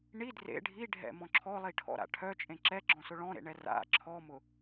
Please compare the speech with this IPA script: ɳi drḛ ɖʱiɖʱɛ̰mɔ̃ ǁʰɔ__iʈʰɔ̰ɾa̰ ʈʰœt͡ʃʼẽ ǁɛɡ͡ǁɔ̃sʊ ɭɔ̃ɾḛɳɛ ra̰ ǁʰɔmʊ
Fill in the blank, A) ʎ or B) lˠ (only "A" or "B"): B